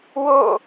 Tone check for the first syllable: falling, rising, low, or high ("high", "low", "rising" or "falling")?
falling